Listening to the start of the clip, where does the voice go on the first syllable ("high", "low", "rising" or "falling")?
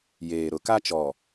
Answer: low